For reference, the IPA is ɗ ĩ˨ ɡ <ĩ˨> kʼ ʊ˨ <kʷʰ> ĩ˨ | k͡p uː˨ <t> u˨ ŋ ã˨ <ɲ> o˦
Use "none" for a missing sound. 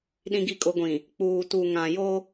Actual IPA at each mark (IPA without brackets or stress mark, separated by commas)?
i˨, ɡʷ, t, j